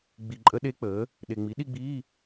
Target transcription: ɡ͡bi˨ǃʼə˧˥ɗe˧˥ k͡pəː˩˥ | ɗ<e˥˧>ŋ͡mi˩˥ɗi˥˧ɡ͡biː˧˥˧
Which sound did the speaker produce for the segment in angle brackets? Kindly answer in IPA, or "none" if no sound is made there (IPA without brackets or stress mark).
e˨